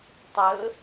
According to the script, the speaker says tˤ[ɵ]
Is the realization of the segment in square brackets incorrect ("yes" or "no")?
no